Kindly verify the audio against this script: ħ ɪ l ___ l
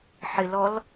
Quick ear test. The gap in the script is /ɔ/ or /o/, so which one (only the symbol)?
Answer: ɔ